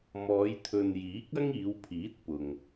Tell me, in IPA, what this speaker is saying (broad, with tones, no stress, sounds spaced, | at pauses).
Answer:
m ɔː˨˧ j t̪ʰ ɵ˨ n j iː˨˥ k̚ ɐ˥ ŋ iː˨˧ w pʰ iː˨˥ t̚ p ʊ˨ ŋ